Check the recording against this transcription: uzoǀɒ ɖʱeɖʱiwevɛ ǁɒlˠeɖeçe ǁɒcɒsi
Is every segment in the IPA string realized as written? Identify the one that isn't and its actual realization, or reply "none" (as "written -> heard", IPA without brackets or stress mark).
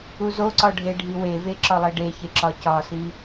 ɛ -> e